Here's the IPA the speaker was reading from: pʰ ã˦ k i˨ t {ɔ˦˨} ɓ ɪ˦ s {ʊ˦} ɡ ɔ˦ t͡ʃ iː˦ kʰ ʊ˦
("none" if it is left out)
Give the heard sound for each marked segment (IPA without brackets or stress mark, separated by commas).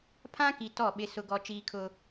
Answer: ɔ˦˨, ʊ˦